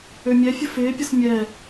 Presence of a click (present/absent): absent